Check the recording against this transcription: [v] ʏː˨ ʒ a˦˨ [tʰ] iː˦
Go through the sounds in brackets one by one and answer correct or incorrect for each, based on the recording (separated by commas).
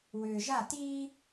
incorrect, incorrect